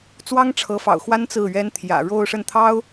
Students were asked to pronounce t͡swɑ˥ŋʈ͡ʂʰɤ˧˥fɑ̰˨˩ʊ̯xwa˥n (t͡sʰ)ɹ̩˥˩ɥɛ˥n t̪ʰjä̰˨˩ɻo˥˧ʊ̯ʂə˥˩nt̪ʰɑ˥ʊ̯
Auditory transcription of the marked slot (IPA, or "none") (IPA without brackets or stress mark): t͡s